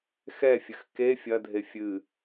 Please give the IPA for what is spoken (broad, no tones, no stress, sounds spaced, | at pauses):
x ɛ fʲ ɘ x k e fʲ ɐ dʱ e fʲ ɨ